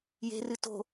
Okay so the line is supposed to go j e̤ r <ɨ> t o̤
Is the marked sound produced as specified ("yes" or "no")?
yes